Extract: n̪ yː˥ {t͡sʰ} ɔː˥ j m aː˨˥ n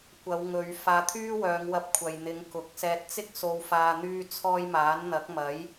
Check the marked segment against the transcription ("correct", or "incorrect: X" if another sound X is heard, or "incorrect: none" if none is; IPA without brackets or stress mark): correct